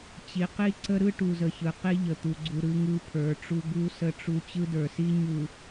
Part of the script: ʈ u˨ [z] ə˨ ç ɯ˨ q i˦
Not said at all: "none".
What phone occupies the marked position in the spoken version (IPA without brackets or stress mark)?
z